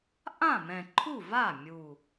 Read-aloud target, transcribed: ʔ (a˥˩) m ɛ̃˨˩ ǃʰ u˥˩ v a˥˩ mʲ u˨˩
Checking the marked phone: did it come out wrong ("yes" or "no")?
yes